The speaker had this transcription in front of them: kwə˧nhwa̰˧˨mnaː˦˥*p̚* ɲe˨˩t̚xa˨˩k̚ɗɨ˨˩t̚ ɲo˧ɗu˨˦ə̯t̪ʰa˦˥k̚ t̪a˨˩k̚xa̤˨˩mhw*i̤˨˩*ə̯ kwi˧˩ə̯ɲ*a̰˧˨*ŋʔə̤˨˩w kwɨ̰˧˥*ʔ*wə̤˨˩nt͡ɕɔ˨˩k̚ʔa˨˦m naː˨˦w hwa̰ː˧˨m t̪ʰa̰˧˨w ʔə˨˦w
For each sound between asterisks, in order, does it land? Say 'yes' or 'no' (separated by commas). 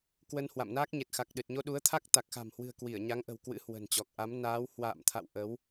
no, no, no, no